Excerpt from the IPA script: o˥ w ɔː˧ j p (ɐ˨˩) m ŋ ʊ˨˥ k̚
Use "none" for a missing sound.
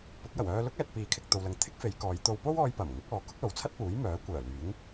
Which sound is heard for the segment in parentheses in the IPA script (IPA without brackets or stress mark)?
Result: ɐ˨˩